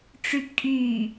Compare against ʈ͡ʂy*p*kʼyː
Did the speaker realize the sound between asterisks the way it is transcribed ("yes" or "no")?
yes